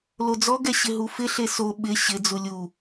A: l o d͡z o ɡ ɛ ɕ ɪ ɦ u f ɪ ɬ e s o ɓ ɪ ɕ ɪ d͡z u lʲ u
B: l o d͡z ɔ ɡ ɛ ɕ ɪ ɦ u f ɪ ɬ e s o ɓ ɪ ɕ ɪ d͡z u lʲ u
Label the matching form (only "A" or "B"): B